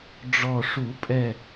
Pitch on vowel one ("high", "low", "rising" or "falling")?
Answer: low